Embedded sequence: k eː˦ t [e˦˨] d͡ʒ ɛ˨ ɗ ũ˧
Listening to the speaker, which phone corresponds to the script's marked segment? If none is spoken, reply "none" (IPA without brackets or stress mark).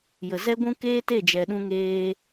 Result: e˦˨